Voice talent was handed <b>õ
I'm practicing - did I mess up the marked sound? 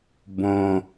no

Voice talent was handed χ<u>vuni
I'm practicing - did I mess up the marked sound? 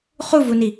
no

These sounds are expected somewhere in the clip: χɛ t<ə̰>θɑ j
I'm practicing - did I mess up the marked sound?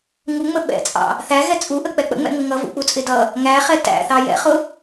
yes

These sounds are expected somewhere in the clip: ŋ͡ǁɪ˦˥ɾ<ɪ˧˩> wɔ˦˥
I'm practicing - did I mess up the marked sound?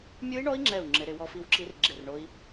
yes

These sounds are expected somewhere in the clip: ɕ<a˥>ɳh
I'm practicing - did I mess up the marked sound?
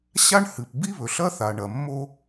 no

